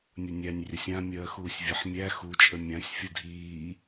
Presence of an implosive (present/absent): absent